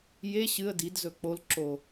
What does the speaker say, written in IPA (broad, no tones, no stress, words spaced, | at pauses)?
je ɕɨə̯ didzɵ k͡pol ǁo